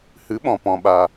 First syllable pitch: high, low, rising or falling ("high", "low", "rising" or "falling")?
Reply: rising